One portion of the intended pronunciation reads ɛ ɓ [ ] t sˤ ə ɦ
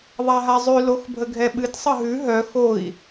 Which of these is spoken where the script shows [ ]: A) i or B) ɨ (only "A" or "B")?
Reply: B